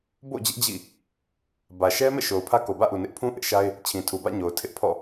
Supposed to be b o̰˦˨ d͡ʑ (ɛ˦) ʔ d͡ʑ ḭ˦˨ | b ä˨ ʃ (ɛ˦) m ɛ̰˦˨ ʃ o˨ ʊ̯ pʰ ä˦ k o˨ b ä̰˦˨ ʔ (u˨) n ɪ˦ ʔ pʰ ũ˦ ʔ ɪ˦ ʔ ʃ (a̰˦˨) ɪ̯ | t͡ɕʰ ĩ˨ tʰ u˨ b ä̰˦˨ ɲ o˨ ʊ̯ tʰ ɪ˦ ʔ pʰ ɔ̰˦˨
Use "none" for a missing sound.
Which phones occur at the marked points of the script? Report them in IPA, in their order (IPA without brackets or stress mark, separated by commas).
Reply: ɪ˦, ɛ˦, u˨, a˦